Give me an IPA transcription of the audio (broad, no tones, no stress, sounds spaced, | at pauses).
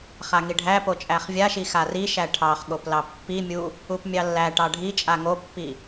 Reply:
χ a ŋ i ɖʱ æ p o t͡ʃʼ æ χ vʲ a ʃ i x a r i ʃ æ ʈʰ ɑ χ ɠ o p l ɑ pː i mʲ u | u p mʲ ɑ lː æ ʈ ɑ ɖʱ i t͡ʃʼ a ŋ o pː i